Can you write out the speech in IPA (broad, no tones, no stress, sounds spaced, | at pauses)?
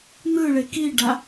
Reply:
n̪ ɯ ɭ e k i ɖ a